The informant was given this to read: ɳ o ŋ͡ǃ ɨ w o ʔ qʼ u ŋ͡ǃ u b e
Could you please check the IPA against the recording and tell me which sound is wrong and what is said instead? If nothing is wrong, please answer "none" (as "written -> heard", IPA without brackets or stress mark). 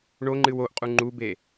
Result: none